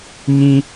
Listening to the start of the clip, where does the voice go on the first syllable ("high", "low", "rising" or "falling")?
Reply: high